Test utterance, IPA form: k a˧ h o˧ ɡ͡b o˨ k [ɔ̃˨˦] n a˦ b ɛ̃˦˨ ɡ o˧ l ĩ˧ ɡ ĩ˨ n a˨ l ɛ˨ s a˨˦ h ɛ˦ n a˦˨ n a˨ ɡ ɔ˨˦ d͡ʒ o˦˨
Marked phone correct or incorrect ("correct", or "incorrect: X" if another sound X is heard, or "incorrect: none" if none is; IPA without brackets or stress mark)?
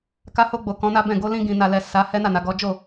correct